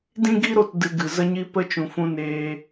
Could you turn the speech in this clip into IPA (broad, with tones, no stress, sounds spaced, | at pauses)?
d ĩ˦ ɡ i˦ ɾ o˧ t d ɨ˧ ɡ ɨ˨ z ə˦ ɲ i˦ p ə˦ t͡ʃ ũ˨ f ũ˧ n eː˧